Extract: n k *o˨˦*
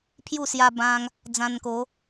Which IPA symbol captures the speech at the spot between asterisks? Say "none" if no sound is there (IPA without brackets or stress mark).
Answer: o˨˦